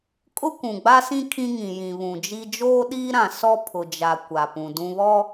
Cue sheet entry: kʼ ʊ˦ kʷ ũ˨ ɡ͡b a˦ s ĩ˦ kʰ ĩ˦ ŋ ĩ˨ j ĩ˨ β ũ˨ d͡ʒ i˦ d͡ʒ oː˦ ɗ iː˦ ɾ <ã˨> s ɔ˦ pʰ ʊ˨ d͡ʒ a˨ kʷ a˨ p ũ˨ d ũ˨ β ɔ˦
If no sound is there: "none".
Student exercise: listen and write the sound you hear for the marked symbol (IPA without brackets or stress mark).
ã˨